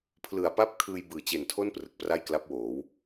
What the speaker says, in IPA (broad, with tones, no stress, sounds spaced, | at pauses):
pʰ l ɯ˨˩ a̯ p a˥˩ p̚ kʰ ɯː˧ j b ɯː˨˩ t͡ɕ e˨˩ n tʰ o˥˩ n p r ɯ˨˩ k̚ p r a˥˩ j k l a˦˥ p̚ w oː˩˦ w